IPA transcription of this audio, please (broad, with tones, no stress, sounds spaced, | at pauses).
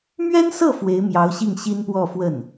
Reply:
m ɥ ɛ˥ n s ɤ˥˩ f w e˧˥ ɪ̯ m j ɑ˧˥ ʊ̯ ɕ i˥˩ ŋ ɕ i˥ n p w ɔ˥˧ f w ə˥˩ n